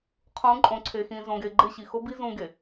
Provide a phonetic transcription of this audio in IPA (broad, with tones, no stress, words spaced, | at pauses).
qʰũ˨˦ ǃʼõ˨ǀʰe˨xĩ˨ zõ˨ɡe˨ɡ͡ǃɪ˦˨ ɕi˨xo˦bi˦ zũ˦ɡe˨